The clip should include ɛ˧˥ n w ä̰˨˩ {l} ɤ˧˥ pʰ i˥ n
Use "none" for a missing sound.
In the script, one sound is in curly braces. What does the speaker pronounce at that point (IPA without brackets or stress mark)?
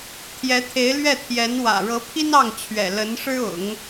ɻ